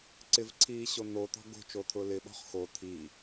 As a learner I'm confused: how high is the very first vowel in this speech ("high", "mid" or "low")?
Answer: high